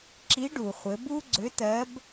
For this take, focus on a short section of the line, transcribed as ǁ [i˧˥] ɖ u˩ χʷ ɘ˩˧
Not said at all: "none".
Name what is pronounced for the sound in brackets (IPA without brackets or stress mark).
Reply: i˧˥